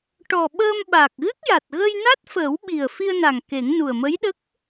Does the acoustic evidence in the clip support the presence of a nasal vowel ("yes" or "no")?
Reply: no